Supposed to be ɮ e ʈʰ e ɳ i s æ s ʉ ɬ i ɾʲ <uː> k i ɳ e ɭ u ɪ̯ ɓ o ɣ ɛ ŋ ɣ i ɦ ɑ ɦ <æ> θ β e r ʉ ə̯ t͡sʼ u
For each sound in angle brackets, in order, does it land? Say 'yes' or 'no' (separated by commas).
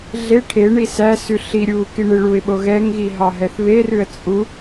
yes, no